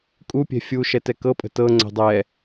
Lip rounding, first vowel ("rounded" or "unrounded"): rounded